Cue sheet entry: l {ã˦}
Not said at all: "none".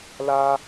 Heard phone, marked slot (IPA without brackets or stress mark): a˦